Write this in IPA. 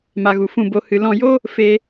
m a˨ ɣ u˨ f ũ˧ b o˧ h ɨ˧ l ɔ̃˧ j o˦ | f e˦

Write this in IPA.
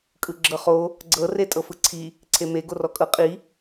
kʼ ɯ ɡ͡ǁ ɤ χ o | ɡ͡ǀ ɤ r e tʼ ɤ f ɯ ǀʰ i | ǀʰ e m e ɡ o r ɔ kʼ ɤ qʼ i

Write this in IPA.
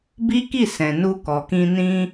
b i˦ k i˦˨ s ɛ̃˨ n u˧ k ɔ˨ k ĩ˧ n ĩ˧

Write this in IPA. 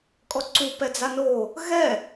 kʼ ɔ ǀ u p ɛ d͡z a n o | ɣ ɛ

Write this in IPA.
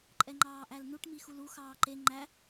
ǃʼ ɛ ŋ͡ǃ ɑː ʔ æ l n u ʈ m i x u l u x ɑː ǃ e ŋ͡ǃ æ

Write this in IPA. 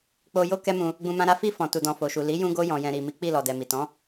k͡p o˧ j o˦ k ɛ˦ m ũ˧ | ɡ͡b ũ˧ m ã˧ ɾ a˦ f i˧ f ɔ̃˨ t u˨ d ɔ̃˨ f o˨ ʃ u˨ l i˨˦ j ũ˧ ɡ o˧ j ɔ̃˨ j ɛ̃˨ ɾ i˨ m i˨˦ k͡p i˦˨ l ɔ˨ d ɛ˨ m i˨ t ɔ̃˨˦

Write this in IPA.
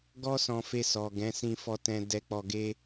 ɡ ɔ˦ s ɔ̃˧ f e˧ s ɔ˨ ɡ ɛ̃˨˦ s ĩ˦ f ɔ˦ t ɛ̃˦ d ɛ˧ k͡p ɔ˧ ɡ e˦

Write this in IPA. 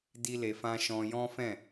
d i˦ l e˧ f ã˦ ʃ ɔ̃˧ j ɔ̃˦ f ɛ̃˦˨

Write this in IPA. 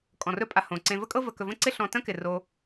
kʼ ɔ̃˩ r ɵ˦ pʼ a˨ h õ˩ ǀ ẽ˨ v ə˥ kʼ ɤ˦ v ə˨ k ɵ˨ v ə̃˥ ǀ ɪ˥ ɬ ɔ̃˨ t ə̃˥ k ɪ˩ r o˨

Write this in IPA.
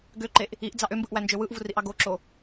ɡ ø ǃ e ʔ | i ʔ d͡z ɑ ʔ ø m b ɯ ʔ w æ n d͡ʒ ø w ɯ ʔ v u r i ʔ ɑ ɡ o ǁ o

